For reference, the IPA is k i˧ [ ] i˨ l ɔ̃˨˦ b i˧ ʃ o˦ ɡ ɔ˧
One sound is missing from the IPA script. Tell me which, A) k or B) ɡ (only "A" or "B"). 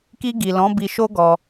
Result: B